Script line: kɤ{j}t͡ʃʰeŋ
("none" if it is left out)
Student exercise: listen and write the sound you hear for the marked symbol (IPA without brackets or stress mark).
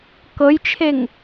j